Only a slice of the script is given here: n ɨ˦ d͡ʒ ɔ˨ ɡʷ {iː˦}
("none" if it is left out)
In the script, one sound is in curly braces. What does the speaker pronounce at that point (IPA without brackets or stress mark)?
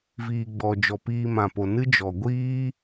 iː˦